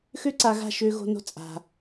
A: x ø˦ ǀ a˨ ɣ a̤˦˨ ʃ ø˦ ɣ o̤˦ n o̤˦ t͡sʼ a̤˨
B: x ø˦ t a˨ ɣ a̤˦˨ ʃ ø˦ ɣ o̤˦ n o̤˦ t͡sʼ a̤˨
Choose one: A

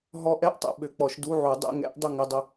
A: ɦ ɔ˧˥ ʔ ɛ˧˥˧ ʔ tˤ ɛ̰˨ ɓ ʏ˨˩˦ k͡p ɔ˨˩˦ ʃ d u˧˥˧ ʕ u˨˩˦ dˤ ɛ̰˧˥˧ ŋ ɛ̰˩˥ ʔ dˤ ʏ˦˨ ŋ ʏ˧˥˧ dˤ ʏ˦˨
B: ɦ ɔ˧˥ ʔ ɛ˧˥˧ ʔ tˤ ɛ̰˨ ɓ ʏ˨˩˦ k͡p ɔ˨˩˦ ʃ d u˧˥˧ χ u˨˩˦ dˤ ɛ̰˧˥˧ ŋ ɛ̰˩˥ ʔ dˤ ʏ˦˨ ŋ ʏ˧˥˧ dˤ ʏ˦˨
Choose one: A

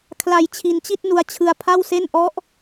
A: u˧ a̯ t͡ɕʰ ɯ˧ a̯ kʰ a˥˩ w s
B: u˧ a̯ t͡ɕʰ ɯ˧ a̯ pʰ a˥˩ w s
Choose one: B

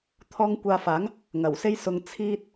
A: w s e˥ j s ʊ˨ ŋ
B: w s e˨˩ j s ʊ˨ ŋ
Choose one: A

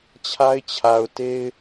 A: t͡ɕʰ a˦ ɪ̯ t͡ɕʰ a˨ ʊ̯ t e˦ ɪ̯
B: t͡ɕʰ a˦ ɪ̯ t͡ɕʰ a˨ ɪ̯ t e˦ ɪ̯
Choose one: A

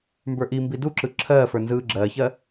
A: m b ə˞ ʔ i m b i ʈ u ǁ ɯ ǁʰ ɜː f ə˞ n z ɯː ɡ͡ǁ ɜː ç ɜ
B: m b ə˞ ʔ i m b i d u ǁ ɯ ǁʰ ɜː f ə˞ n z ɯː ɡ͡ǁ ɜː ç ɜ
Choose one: B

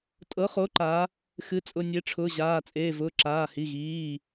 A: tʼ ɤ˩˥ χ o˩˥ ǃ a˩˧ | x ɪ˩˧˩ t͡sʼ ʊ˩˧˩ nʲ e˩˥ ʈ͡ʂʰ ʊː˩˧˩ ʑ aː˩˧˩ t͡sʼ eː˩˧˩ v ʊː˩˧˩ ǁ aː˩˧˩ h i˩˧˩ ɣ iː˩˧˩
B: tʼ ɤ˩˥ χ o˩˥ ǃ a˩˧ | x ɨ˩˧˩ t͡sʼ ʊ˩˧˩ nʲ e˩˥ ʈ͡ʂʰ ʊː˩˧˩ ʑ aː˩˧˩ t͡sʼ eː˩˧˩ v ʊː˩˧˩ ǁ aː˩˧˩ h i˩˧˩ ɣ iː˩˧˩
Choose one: B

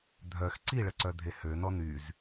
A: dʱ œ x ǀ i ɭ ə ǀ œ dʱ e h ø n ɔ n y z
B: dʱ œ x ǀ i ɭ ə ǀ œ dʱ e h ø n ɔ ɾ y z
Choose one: A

